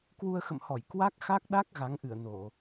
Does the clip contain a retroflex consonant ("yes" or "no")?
no